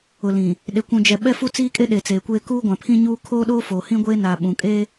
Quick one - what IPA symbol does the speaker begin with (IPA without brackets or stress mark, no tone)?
ʊ